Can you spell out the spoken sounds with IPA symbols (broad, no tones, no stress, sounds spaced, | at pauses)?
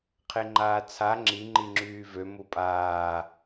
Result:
qʰ e ŋ͡ǃ aː t͡sʰ a ŋ͡ǁ i ŋ͡ǃ i ŋ͡ǁ yː v ø m u pʼ aː